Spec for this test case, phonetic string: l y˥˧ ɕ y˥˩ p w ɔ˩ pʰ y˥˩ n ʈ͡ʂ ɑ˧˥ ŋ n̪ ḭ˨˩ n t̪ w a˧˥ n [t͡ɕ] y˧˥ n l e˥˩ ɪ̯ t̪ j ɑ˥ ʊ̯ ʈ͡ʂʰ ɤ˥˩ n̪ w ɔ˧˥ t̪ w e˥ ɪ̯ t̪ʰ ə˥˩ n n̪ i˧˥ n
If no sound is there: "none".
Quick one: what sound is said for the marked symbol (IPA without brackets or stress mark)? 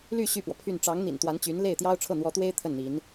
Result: t͡ɕ